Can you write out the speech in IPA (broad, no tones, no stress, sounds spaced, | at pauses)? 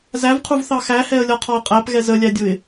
z æ v qʰ u v θ ɑ x æ h ɛ ə̯ lʲ ɒ qʰ ɒ ə̯ qʼ æ p ɣ ɛ z ə lʲ æ dʲ ʊ ɪ̯